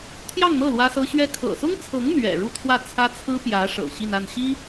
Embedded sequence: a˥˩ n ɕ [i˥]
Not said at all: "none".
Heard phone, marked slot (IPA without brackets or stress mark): i˥